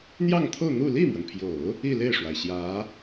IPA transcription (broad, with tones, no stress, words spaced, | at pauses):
n̪jɑ˥˧ŋt̪ʰo˥˧ʊ̯n̪u˥˧ li˥˩mwə˩npʰjo˨˩˦ʊ̯ | i˥˧le˥˩ɪ̯ʂwa˩ɪ̯ ɕjä˧˥